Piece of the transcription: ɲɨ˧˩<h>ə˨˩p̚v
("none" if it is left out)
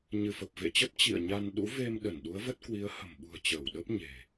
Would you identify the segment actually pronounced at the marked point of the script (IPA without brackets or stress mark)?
f